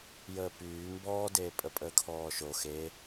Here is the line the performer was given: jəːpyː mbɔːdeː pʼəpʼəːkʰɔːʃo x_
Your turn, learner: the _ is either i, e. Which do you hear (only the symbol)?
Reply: e